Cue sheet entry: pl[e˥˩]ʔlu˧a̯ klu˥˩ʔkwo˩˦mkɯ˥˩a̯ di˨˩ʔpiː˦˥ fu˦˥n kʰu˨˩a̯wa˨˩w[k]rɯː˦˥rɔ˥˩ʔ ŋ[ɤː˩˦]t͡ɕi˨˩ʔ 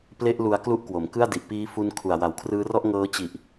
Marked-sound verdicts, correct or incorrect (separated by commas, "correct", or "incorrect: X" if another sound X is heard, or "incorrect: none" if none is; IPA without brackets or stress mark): correct, incorrect: kʰ, incorrect: ɤː˦˥